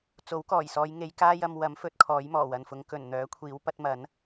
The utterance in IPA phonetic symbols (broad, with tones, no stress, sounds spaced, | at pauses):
t͡s o˨˥ w k ɔː˨˩ j s ɔː˨˧ j ŋ e˨˧ j k aː˥ j ɐ˧ m w ɐ˨˥ m f ɵ˨˥ t̚ kʰ ɔː˨˥ j m ɔː˨˩ w ɐ˨ n f ʊ˨˧ ŋ k ɵ˨˩ n n̪ œː˨˥ kʷʰ iː˨˥ w p ɐ˨˥ t̚ m ɐ˨˥ n